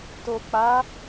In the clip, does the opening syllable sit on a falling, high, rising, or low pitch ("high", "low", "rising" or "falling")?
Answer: low